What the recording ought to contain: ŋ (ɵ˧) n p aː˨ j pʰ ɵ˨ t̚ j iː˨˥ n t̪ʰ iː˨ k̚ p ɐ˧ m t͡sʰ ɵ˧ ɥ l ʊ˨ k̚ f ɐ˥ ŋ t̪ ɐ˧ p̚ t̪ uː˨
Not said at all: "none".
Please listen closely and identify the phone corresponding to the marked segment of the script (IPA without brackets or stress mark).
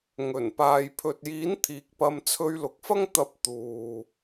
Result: ɵ˨˩